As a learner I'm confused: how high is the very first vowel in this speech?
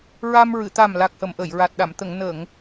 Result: low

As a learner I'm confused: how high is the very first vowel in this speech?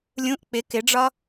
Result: high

